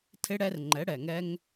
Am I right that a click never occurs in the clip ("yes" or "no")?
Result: no